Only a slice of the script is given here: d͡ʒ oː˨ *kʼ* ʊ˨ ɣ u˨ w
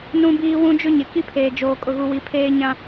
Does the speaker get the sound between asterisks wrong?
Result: no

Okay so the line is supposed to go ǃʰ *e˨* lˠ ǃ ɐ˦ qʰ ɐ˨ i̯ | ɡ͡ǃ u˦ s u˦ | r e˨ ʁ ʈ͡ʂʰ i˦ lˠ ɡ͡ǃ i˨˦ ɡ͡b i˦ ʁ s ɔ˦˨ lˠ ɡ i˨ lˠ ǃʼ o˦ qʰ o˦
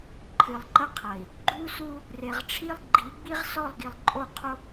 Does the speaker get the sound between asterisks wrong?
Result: yes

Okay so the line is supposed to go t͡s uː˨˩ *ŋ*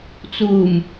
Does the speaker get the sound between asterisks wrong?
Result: yes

